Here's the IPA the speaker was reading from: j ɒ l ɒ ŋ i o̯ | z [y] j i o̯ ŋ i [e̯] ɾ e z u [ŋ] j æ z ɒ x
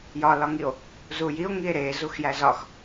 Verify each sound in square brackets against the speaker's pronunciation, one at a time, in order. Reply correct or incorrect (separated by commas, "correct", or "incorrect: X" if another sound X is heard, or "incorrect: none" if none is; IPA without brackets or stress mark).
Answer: incorrect: u, correct, incorrect: x